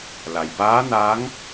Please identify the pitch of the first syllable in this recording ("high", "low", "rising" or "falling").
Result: low